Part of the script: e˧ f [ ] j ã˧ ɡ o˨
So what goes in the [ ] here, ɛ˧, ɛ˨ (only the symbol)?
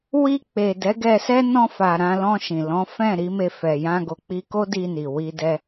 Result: ɛ˨